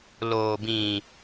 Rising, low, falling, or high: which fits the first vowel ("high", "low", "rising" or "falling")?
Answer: low